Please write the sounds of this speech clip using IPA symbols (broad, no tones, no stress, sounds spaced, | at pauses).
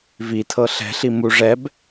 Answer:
v i tʰ ɤ ɬ ɛ̤ ɬ i m u ʐ ɛ b